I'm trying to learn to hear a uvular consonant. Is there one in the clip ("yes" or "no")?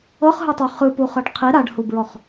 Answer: yes